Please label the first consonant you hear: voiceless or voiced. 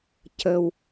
voiceless